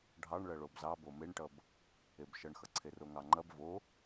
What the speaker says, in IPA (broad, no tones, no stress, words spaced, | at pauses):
ɖʱɑɳɭɐ ɭobzɑ bomeɳʈʌb | ebʃʌɳxʌ ǀʰeroŋɑŋ͡ǃɐb vo